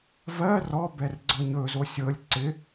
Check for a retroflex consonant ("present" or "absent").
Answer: absent